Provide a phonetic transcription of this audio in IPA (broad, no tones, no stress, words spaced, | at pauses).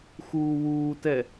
xuːwuːtɛ